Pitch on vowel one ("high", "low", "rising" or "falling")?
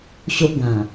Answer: high